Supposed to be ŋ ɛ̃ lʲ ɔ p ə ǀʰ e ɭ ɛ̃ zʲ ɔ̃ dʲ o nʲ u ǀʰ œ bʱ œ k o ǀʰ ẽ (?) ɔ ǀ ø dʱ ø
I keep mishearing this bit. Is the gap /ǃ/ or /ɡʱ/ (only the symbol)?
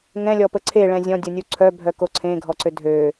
ɡʱ